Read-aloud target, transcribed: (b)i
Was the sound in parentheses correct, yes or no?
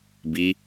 yes